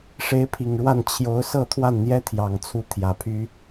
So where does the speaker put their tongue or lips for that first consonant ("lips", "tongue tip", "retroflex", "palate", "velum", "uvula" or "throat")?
retroflex